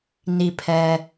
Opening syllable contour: low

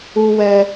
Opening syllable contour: high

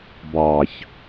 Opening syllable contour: low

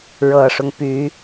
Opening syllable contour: low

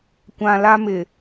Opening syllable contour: low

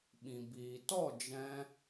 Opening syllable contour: low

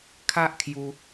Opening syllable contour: high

